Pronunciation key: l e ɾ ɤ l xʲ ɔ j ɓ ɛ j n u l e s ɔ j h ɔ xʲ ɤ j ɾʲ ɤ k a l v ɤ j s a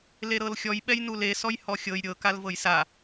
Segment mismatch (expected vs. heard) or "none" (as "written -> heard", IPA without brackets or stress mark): none